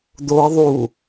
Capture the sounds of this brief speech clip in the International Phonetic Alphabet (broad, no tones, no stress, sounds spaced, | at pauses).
d̪ o ə̯ ðˤ u